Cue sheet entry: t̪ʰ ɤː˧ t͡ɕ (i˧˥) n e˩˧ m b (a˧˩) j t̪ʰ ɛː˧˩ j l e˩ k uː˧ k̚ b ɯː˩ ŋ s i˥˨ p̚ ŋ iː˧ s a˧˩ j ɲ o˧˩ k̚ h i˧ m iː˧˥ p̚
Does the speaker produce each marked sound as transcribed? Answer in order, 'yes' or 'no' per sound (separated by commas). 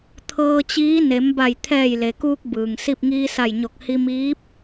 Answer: no, yes